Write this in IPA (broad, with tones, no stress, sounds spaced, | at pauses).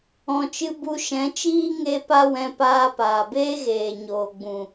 ɔ̃˧ t͡ʃ ɨ˦ b u˧ ʃ ɛ̃˨˦ t͡ʃ iː˦ ŋ e˧ p a˦ w ɛ̃˧ p aː˧ p aː˨ b eː˦ ɣ eː˨ ɲ oː˨ ɡ͡b ũ˨